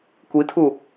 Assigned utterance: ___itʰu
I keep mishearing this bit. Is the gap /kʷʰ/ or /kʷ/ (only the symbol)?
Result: kʷ